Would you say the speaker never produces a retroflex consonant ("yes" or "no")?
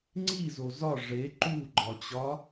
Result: no